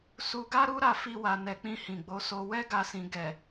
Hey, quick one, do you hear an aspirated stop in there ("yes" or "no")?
no